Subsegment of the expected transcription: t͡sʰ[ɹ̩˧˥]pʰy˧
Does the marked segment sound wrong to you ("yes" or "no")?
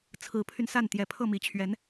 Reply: no